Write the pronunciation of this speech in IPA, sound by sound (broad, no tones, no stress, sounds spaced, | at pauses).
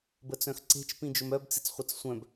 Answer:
b ə t͡s œ̃ x ǀ e̤ t͡ʃ p ĩ d͡ʒ ɵ m œ b t͡s i̤ t͡s χʷ e t͡s sʷ œ̃ b